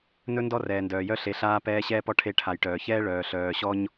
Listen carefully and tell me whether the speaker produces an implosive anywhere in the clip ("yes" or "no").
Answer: no